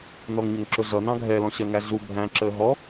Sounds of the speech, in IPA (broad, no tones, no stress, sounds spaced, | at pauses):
n ɔ ŋ ɲ ʊ ŋ ǁ ʊ ɮ ʌ n ɑ̃ ɡʱ ɛ l ɔ̃ ɕ ɜ ŋ æ ɮ u bʱ æ̃ ǁ əː ɦ ɔ